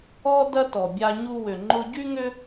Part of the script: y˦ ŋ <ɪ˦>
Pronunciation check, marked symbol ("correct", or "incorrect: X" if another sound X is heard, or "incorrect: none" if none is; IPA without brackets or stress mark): incorrect: ʏ˦